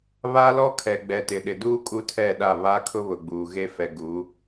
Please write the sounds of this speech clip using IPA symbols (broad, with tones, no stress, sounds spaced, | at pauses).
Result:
β a˦ l ɔ˦ kʰ ɛ˨ ɡ͡b ɛ˨ t ɪ˨ ɗ ɪ˨ d uː˦ kʼ u˦ tʰ ɛ˦˨ ɗ a˦˨ β a˦ kʰ ʊ˦ β ʊ˨ ɡ͡b uː˨ ɣ e˦ f ɛ˨ ɡ u˨˦